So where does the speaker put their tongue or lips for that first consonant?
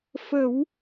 lips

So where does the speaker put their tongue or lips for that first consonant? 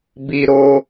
lips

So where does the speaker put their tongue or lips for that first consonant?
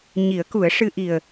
palate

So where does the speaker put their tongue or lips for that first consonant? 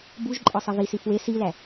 lips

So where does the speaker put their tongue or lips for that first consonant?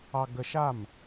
velum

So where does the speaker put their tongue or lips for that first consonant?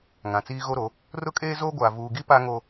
velum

